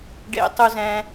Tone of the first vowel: high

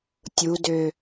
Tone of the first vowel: low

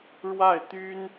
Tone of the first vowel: falling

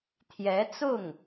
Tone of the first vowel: rising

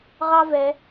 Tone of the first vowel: high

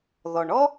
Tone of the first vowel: low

